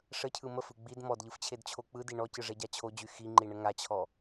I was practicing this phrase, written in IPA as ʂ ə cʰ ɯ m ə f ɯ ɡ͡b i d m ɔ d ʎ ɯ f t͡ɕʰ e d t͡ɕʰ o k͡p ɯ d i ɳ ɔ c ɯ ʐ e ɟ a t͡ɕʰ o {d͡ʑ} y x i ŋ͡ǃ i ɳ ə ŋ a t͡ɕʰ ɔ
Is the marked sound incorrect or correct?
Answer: correct